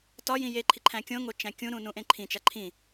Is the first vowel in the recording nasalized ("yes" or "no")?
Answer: no